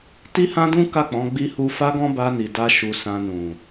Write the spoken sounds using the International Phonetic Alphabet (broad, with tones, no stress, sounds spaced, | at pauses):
t i˦ h ã˦ d ũ˦ k a˦˨ k͡p ɔ̃˨˦ ɡ͡b i˦ h u˦ f a˦ ɡ ɔ̃˦ b a˧ n i˨ d a˧ ʃ u˧ s ã˧ n ũ˨